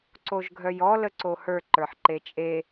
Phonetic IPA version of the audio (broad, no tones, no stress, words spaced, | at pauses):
ǀoʒɡʱœjɔ ləǀohə˞ ǃə˞ħǃet͡ʃʼe